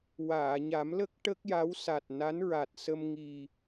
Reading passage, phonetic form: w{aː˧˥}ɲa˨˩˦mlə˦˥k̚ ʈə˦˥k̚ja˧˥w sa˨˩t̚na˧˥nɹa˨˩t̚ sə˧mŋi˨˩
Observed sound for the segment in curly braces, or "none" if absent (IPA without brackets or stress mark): aː˨˩˨